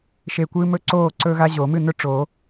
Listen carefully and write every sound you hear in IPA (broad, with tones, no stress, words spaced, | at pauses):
ʃe˧˩kʷɨː˦mɵ˥˩ ǀoː˥˩ǀɵ˦ɣa˦ ʑo˨˩˦mɨ˥˩nɵ˥˩ ʈ͡ʂo˨˩˦